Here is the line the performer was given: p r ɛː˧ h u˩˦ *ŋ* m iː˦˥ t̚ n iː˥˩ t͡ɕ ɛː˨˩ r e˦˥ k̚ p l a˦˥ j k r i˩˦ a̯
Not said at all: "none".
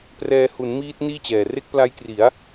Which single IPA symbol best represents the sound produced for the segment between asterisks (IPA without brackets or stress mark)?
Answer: n